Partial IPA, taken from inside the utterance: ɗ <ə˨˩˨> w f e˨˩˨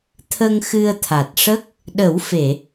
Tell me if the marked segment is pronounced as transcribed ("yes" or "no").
no